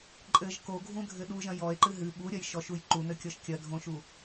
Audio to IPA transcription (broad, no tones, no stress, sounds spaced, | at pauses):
ǃʼ ɘ ʒ k o ɡʱ ũ dʱ ɘ ɗ u ʒ ɐ̃ j ɔ e̯ ǃ ɨ ɦ ɨ ɓ u ɾʲ ɐ j ʃ ɔ ʃ u j ǃ u n ɘ kʲ ɔ ʃ kʲ ɐ dʱ õ ʃ u